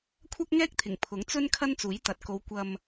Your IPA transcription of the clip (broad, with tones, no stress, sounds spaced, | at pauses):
kʷʰ ɐ˥ k̚ ŋ ɛː˥ k̚ t̪ʰ ɪ˨˩ ŋ pʰ ʊ˨˥ ŋ t͡s ɵ˥ n kʰ ɐ˥ n t͡s uː˨˥ j t̪ ɐ˨ t̚ k o˨˧ w kʷ ɐ˧ m